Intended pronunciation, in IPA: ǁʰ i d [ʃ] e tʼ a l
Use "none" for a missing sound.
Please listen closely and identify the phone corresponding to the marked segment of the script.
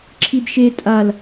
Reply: ʃ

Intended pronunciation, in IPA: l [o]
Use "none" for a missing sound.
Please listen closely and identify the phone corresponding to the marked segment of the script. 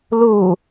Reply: u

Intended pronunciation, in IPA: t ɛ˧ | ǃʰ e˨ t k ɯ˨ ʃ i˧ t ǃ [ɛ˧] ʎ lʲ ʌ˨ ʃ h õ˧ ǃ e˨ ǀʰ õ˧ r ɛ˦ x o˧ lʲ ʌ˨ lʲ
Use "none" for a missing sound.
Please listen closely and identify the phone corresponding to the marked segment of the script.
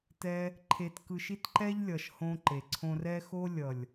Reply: ɛ˦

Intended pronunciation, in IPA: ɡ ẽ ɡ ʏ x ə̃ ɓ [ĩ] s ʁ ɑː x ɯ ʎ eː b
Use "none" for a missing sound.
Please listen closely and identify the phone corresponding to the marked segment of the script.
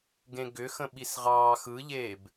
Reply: i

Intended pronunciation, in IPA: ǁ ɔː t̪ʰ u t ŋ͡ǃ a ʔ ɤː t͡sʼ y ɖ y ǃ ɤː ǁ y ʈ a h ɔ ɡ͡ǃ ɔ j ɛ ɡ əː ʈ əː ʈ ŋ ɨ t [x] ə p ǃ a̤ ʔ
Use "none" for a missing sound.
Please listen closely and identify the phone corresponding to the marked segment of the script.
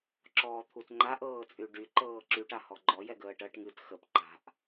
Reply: x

